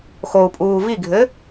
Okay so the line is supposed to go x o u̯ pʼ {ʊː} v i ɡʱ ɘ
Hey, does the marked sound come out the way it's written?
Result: no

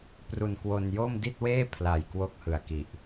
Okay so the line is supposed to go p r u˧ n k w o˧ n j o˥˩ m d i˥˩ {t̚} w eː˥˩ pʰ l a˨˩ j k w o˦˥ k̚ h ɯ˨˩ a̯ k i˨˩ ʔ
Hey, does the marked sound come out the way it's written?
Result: yes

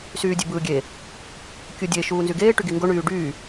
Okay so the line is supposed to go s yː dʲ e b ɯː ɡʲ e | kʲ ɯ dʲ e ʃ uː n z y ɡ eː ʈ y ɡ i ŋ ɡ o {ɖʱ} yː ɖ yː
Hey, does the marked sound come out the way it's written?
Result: no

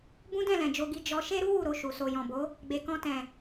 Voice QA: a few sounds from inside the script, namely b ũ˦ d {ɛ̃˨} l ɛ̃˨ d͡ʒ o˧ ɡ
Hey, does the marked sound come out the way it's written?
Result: no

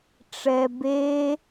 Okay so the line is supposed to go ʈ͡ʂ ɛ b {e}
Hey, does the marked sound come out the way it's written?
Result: yes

